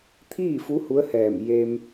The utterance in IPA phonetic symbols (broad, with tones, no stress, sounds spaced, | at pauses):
t̪ʰ iː˥˨ f u˧˥ h u˧˥ ə̯ h ɛː˧˩ m j e˧ m